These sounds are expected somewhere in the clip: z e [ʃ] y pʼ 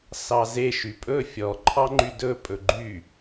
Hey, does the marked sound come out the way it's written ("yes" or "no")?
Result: yes